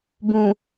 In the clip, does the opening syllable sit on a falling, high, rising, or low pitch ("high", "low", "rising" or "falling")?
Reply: low